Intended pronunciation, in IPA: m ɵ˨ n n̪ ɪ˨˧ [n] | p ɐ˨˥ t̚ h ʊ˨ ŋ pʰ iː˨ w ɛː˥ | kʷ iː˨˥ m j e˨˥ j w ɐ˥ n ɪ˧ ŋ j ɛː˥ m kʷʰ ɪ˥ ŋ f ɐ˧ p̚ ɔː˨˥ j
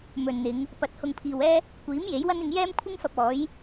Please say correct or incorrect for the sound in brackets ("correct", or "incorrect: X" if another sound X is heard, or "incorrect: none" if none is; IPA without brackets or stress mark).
incorrect: ŋ